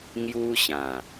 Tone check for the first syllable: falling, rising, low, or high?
high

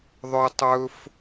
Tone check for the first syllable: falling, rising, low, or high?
high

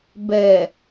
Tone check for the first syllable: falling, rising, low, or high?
low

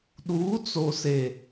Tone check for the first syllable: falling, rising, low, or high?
rising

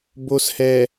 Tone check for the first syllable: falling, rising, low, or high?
low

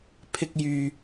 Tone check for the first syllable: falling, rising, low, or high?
high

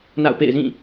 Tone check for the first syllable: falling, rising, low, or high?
falling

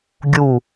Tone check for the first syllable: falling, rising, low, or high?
falling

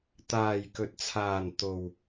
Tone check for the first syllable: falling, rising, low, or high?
low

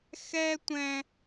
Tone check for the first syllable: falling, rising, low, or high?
high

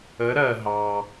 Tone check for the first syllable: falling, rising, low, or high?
rising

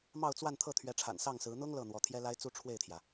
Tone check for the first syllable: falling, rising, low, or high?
falling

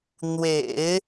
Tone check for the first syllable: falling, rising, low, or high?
low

